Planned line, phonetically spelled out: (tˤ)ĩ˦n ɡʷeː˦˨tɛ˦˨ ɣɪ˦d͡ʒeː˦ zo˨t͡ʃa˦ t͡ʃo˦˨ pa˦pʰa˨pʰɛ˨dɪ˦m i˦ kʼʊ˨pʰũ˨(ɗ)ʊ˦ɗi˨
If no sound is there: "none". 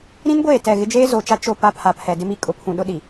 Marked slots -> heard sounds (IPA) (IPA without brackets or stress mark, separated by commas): ɾ, ɗ